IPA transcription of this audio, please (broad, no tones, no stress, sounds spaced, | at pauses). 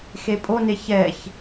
x e pʼ o n e ç ɛ ç